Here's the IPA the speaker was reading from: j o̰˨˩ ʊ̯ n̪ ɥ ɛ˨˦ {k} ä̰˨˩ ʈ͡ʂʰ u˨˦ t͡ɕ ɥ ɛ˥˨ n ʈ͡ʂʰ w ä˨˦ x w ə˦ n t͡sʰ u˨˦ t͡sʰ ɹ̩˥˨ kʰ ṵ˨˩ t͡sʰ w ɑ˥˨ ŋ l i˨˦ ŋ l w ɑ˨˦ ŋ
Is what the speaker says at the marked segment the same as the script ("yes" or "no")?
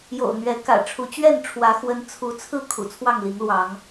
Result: yes